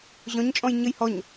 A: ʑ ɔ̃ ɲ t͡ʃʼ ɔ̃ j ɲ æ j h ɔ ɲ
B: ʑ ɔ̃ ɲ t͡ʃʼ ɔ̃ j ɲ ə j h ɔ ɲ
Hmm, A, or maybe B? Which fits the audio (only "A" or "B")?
B